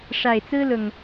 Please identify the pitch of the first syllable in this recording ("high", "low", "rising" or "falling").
low